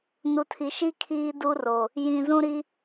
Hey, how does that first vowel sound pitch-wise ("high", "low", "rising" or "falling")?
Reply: low